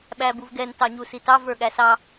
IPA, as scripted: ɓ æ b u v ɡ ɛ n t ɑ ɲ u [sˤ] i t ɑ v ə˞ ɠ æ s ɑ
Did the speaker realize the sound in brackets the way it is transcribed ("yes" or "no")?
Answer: no